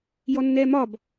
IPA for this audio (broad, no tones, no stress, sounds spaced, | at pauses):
j ɔ nː ɛː m ɒ b